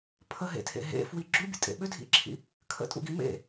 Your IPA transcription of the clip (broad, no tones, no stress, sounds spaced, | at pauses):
pʰ ə ɦ ḛ tʰ ḛ ɦ ḛ f w i ɡ͡ǁ u bʲ ə̰ tʼ ḛ ɓ ʏ dʱ ḭ ǁʰ ḭ | kʰ ə̰ tʼ ṵ ɡ i m ḛ